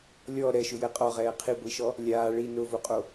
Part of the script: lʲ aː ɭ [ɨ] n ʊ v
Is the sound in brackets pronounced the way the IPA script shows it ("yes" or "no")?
no